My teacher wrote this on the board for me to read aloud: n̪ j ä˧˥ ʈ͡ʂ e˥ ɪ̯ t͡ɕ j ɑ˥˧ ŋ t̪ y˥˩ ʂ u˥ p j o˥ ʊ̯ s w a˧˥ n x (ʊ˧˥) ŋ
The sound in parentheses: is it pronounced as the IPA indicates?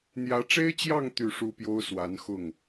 no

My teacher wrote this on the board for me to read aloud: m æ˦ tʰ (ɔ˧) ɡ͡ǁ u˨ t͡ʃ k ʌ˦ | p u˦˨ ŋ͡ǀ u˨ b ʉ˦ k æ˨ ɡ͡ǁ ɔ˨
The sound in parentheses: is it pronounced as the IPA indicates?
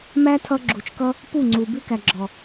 no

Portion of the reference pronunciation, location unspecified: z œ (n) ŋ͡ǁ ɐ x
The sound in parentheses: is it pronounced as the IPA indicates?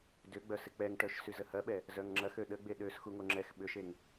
no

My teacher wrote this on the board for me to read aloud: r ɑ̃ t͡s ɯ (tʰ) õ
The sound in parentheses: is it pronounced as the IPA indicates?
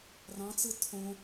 yes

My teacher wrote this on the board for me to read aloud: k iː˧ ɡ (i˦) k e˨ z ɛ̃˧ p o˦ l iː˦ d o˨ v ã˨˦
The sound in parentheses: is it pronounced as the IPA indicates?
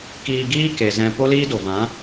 no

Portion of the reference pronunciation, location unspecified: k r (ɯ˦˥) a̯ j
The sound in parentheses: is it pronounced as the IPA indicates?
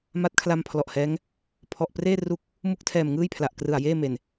no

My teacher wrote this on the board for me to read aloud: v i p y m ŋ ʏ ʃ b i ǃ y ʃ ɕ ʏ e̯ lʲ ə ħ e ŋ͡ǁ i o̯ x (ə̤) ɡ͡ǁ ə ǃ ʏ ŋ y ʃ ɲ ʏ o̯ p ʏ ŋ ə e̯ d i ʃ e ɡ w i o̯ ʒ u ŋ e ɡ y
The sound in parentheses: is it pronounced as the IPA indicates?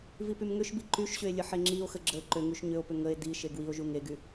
no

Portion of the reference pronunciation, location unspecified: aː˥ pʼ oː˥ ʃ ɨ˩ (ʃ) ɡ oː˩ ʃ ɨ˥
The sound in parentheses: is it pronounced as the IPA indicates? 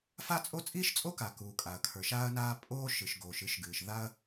yes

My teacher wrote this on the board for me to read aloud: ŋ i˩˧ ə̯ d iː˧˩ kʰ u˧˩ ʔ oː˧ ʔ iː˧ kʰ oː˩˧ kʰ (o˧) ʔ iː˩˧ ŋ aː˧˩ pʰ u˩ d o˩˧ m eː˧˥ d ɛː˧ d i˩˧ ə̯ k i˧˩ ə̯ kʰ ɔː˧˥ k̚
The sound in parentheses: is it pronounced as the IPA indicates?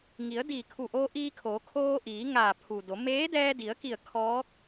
no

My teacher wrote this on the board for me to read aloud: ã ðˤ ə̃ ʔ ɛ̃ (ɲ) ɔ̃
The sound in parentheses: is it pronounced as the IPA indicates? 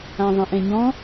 yes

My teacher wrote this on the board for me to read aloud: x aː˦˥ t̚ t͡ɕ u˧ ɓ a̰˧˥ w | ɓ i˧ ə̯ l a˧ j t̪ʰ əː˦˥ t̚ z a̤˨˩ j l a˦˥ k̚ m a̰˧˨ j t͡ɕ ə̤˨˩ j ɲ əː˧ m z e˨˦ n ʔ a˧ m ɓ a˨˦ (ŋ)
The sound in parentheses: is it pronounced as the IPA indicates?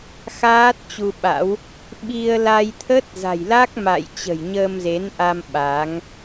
yes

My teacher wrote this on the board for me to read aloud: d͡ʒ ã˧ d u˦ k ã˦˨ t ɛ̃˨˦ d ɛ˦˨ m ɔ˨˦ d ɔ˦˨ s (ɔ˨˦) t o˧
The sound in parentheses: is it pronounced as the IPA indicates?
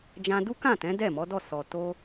no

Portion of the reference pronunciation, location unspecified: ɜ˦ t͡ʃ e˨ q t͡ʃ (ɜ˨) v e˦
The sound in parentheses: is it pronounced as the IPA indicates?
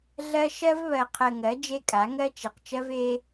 no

